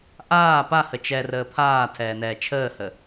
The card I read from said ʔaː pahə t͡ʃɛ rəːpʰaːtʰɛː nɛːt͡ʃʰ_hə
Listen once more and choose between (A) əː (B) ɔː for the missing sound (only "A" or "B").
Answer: A